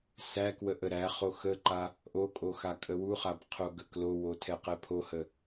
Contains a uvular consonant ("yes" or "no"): yes